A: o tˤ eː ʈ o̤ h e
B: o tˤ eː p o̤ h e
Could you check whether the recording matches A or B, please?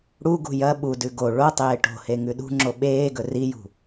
A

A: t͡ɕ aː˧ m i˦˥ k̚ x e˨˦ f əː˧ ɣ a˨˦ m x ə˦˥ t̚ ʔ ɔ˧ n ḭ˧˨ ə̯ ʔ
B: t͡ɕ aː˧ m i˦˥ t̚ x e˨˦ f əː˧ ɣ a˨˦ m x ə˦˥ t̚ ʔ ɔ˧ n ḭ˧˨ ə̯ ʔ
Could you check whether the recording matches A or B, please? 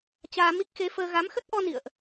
A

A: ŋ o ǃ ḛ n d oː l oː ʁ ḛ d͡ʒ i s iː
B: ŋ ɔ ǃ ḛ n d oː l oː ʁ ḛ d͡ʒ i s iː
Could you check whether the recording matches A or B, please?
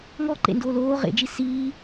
B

